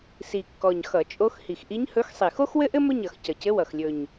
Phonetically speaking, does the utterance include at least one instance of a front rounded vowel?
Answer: no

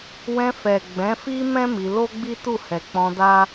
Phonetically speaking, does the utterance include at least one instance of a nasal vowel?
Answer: yes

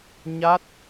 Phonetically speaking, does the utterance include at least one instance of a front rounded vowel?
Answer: no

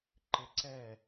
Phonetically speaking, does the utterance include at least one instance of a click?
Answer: yes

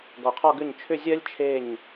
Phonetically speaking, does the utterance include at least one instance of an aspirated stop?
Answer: yes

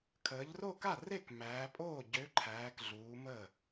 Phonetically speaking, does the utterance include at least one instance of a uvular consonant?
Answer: no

